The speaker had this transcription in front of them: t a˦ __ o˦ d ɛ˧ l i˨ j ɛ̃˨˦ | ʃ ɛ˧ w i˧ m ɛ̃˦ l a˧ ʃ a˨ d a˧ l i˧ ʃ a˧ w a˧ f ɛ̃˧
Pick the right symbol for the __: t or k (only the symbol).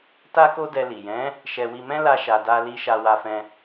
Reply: k